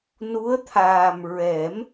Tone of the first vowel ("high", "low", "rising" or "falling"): rising